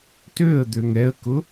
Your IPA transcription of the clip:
t ø ə̯ d̪ ø ŋ ɛ ə̯ k ʊ

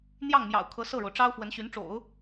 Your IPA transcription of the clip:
n̪ j ɑ˥˩ ŋ m j ɑ̰˨˩ ʊ̯ kʰ ɤ˧˥ s ɤ˥˩ ɻ o˩ ʊ̯ ʈ͡ʂ ɑ˥ ʊ̯ f w ə˧˥ n ɕ y˧˥ n ʈ͡ʂ o̰˨˩˦ ʊ̯

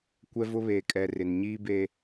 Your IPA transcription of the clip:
kʷ ɛ˦ v ʊ˦ β eː˨ kʼ ɛ˨ r ɪ˨ n ɲ iː˦ b e˦

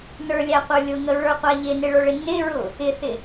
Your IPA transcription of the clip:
n ə˞ lʲ æ qʷ ə˞ lʲ ʊ ŋ ə ɹ ə˞ qʷ æ ʎ ɪ n ɪ ɭ ə˞ ɭ ɪ n ɪ ɹ ʊ | ɪ θ ɪ

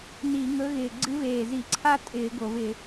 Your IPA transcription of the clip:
n i˧˩˧ ŋ ɵ˧˥ ɣ ɪː˨˩ ɡ͡ǀ ɨ˧˥ v eː˨˩ z i˧˩˧ ǀʰ a˥ tʼ ɪː˧˩˧ ɡ o˧˩˧ v ɪ˧˩˧

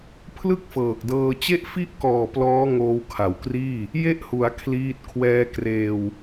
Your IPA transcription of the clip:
pʰ l ɯ˥˩ k̚ f ɤː˨˩ k̚ d ɤː˧ t͡ɕ e˥˩ ʔ f i˥˩ ʔ k ɔː˨˩ p l ɔː˦˥ ŋ oː˧ w kʰ a˨˩ w k r iː˥˩ | j e˥˩ ʔ h u˩˦ a̯ kʰ l iː˦˥ t̚ kʰ w ɛː˧ k r eː˧ w

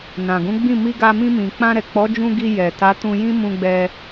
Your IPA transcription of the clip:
n ã˨ ɡ ũ˨˦ ɡ͡b ĩ˦˨ m i˧ ɡ a˧ m ĩ˧ m ĩ˨ k͡p ã˧ ɾ ɛ˨ k͡p ɔ˨˦ d͡ʒ ũ˧ ɡ i˧ j ɛ˨ t a˨˦ t ũ˧ j ĩ˦ m ũ˧ ɡ͡b ɛ˧

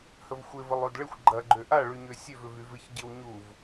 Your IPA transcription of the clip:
h ə v xʷ ɪ v ə lˠ o d ɭ ɪ xʷ ɡ͡ǃ ɐ ɡ͡ǃ ø ʔ a ɭ y ɲ ø sʲ ø v ʏ v y v ɪ ç ɟ ɪ w ɲ u v

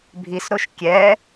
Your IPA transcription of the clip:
bʱ i s ɾ o ʃ kʲ ɛ

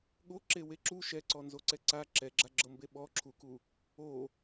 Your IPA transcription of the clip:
ɠ o ǁ e w e ǁ u ʃ ɛ ǀ ɔ n z o ǀ ɛ ǀ a ǁ ɛ ɡ͡ǁ a ɡ͡ǁ ɤ m b e ɓ ɔ ǁʰ u k u | o

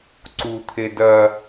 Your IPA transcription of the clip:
ǀ u t̪ʰ e d ɐ

